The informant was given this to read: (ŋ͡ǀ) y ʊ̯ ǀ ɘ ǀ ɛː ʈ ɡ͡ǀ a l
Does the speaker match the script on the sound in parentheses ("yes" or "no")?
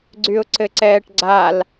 no